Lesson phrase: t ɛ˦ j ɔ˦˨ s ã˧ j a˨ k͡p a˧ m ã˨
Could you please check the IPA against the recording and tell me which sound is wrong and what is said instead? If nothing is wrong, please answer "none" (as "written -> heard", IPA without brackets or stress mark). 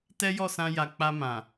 none